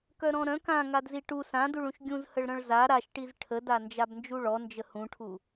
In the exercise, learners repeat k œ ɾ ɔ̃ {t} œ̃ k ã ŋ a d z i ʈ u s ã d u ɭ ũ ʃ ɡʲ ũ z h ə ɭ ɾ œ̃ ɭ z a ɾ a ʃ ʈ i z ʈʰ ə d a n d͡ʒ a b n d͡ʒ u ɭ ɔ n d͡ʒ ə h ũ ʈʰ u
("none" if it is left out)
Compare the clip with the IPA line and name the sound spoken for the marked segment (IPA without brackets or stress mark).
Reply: ɾ